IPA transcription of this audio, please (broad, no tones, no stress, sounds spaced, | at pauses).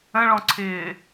ə̃ ɭ ɔ̃ ǀʰ ɪː